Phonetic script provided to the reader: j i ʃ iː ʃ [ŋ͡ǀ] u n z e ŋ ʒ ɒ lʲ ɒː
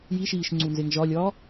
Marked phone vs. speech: correct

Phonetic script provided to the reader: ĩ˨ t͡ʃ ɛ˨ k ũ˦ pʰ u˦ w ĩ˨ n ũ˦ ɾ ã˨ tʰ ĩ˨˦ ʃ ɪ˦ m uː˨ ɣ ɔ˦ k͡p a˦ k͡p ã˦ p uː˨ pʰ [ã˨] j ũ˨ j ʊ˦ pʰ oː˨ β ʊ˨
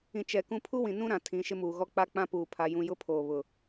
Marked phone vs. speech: incorrect: a˨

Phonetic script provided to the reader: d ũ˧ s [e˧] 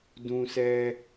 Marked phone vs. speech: incorrect: ɛ˧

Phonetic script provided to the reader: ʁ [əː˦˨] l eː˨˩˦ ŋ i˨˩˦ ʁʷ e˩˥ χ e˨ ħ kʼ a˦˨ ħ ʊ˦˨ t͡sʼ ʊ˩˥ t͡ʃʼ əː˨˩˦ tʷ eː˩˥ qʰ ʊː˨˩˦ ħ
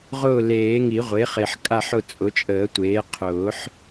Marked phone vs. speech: incorrect: ʊː˦˨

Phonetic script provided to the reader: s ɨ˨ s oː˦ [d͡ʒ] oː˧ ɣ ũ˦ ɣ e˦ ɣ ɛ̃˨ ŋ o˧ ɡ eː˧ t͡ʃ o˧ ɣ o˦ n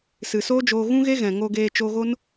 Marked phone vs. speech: correct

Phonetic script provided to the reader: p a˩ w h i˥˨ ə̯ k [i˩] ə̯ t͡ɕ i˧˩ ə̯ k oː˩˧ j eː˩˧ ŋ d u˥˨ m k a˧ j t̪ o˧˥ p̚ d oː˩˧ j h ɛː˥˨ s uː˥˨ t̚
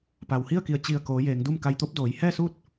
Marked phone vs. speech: incorrect: i˧˩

